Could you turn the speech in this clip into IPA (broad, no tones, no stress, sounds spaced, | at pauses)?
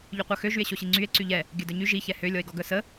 ʎ y qʷ œ x ø ʒ y e̯ ɕ o ɕ i ŋ͡ǀ y e̯ ǀ y ʎ ɛ | ɡʲ œ d œ ɲ y ʒ i ç ɛ h ø lʲ ɔ e̯ ɡ ɔ ɡ œ s ə